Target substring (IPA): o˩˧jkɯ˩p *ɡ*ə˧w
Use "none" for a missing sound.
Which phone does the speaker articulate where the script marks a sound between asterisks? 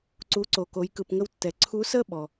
ŋ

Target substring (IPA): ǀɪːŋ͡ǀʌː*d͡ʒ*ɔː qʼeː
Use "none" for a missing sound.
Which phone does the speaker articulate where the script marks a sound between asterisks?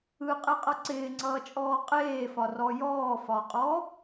t͡ʃʼ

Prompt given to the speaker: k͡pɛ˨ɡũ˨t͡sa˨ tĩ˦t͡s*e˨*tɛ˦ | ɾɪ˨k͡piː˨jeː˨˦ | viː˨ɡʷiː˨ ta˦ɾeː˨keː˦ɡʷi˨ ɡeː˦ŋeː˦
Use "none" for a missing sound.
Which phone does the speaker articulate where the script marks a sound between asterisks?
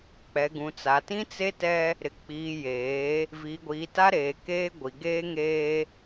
e˦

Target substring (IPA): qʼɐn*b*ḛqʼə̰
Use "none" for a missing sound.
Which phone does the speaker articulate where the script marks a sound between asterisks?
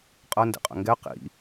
d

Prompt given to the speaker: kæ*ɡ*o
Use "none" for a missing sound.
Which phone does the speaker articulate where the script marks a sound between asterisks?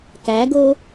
ɡ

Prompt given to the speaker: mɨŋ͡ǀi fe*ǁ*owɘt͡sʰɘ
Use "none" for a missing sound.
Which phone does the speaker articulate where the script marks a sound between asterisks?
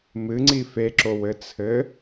ǁ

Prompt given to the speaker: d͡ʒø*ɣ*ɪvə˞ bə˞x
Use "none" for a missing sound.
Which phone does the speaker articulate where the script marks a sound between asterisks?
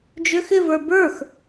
x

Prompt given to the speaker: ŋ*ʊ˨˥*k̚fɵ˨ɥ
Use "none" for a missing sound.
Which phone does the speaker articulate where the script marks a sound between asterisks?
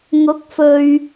ʊ˨˥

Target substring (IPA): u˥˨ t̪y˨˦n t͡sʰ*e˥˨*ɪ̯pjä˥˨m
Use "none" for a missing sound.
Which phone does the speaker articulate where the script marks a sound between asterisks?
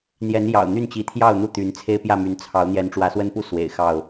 e˦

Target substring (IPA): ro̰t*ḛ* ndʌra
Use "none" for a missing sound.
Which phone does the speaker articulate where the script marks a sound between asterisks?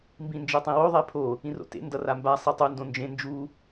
ḛ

